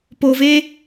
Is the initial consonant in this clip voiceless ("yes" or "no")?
yes